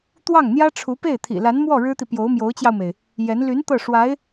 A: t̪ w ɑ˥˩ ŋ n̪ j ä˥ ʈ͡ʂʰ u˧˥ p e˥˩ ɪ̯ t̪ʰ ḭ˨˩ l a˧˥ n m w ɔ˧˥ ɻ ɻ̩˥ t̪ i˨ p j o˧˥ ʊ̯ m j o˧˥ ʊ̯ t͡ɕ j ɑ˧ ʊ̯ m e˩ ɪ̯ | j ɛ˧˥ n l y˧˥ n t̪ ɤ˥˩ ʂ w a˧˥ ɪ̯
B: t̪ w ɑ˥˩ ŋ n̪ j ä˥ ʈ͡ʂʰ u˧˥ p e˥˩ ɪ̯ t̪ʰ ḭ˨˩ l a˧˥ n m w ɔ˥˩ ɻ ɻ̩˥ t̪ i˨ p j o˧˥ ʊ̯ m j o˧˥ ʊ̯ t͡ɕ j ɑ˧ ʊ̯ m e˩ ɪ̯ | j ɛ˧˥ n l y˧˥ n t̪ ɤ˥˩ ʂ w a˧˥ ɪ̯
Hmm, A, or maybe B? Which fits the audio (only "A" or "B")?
B